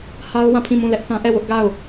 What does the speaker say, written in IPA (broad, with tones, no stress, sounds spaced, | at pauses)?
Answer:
h a˦ ʊ̯ w ã˦˨ pʰ ĩ˦˨ m ũ˦˨ l ɛ˦ ʔ θ ã˦ ʔ ɛ˦˨ w ʊ˦ ʔ ɡ a˦˨ ʊ̯